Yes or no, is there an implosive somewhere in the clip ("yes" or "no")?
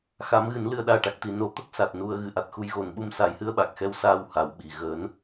yes